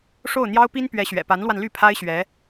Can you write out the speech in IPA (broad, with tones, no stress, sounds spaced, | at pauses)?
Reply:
ʂ o˥˩ ʊ̯ n̪ j ɑ˥ ʊ̯ p i˥ n p ɥ ɛ˧˥ ɕ ɥ ɛ̰˨˩ p a˧˥ n l w a˧ n l y˥˩ pʰ a˥ ɪ̯ ɕ ɥ ɛ˧˥